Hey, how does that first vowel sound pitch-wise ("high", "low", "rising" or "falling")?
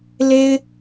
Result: high